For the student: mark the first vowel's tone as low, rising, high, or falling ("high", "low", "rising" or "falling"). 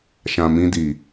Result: low